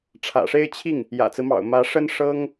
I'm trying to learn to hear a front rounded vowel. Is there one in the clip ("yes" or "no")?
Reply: no